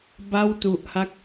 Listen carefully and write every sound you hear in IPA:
ba˥˩wtu˨˩ʔha˥˩k̚

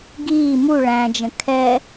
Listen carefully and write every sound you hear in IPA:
ɡiː mu ɭæ̃d͡ʒə̃ kʰɛ

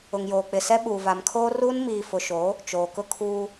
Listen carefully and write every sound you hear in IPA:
ʊ˨ŋjoː˨k͡pɪ˨sɛ˦ ɓuː˨va˨mkʰoː˦ruː˦n miː˨fʊ˨ʃoː˨˦ | t͡ʃoː˨kʊ˦ kʰuː˦

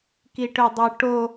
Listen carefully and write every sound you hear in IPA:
kiʈødˤʏ ʈo

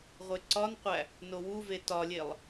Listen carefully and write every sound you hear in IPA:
ʁʷeǀɒnqʷæ | nowuve tɒlʲelˠ

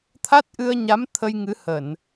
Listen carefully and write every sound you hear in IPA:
t̪ʰa˦˥t̚ʔɨ˧ə̯ɲa˨˦m t̪ʰə˧jŋɨ˨˦ hə˧˩˨n

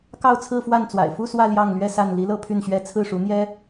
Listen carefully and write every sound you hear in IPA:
kɑ˥˧ʊ̯t͡sʰɹ̩˥˧fwa˥˩nt͡swa̰˨˩ɪ̯ fu˥˧swä˥˧ ljɑ˥˩ŋlɥɛ˥sa˥˩n li˧˥ lɤ˥pʰy˥˩nɕɥɛ˥ t͡sʰɹ̩˥˩ʂu˧˥n̪jɛ˥

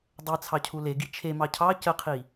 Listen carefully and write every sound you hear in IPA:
dˤɛ t͡sʰɑcʰuleɡi t͡ʃʰemɑ cʰɑ cəqʰi

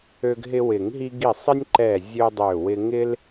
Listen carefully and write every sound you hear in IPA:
ø˦ɡɦɪ˦ wɪ˨˩˦ŋɦi˦ ɡi˧˩sˤɪ˦nʲ ǃɛ˧˩ zʲø˦dˤø˧˩wɪ˦ ŋɪ˦l

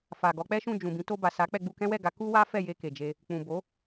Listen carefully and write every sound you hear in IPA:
fa˨ɡɔ˨˦k͡pɛ˦ʃũ˦˨ d͡ʒũ˨bĩ˨˦ to˧ba˨sa˨˦k͡pɛ˧ ɡ͡bu˧kɛ̃˦wɛ˦˨ɡa˨˦ ku˦wa˦ fɛ˦˨je˧ ke˨d͡ʒe˧ | k͡pũ˨bo˨˦

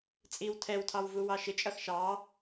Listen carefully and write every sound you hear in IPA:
t͡sʼiw tʰɛwtʰɑw vuwɑʃɪt͡ʃʼʌx ʃɑ

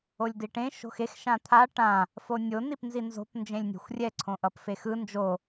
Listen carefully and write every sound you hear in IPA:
olʲdiʈẽ ʃo̤xex ʃãt̪ʰa ʈã | fonʲo nipnzinzo̤p nd͡ʒẽlʲnʲe̤xʷrʲɛ ǀʰõʔʌpfexɯ nd͡ʒo

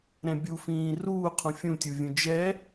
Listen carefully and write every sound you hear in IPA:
ɾɛ̃bʲufĩː ruː qʰũfʲũtʲu vʲũd͡ʒɛ

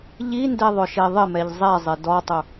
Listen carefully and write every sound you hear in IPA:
ʎindeðˤʊʃe ðˤɪmɛʎ zˤɛzˤɪ dɔtˤʊ

